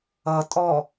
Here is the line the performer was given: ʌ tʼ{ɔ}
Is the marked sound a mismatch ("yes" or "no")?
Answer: no